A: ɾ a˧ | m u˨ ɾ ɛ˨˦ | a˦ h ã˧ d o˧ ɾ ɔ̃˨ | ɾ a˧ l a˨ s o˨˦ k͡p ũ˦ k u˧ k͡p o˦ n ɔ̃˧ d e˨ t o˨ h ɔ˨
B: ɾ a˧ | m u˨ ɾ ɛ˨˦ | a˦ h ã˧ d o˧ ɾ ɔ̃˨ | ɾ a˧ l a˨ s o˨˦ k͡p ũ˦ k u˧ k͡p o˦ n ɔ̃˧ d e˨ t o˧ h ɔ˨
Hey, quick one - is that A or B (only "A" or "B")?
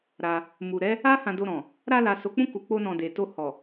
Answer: B